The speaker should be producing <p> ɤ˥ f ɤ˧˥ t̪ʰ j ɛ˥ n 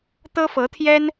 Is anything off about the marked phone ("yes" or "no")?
yes